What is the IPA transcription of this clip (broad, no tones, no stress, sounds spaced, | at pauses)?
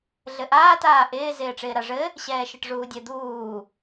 ɮ ɘ ʔ aː t aː ʔ ɪː z ɪː ʈ͡ʂ ɪː ɾ a ʐ ɘ | ɕ ɛː ʃ ɘ ʈ ʐ uː dʲ ɘ d̪ uː